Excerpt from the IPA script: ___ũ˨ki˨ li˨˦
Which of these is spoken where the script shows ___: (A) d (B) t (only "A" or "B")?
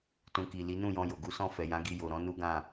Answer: B